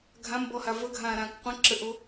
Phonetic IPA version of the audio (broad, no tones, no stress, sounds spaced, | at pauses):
ɡʱ ã m b ɔ h a v ə ɡʱ ãː ɾ ãː k qʷ ə̃ ǁ ə ʔ o